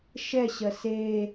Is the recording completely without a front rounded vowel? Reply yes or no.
yes